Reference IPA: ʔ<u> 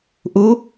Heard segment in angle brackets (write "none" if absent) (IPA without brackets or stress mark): u